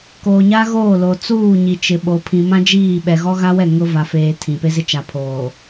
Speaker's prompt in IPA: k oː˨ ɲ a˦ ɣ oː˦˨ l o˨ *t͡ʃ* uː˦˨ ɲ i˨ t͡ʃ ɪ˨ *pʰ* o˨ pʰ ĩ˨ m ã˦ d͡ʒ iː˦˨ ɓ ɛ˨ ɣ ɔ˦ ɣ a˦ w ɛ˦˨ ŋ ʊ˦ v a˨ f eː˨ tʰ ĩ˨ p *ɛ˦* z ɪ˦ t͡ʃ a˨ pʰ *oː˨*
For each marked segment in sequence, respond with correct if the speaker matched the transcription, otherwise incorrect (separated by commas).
incorrect, incorrect, incorrect, correct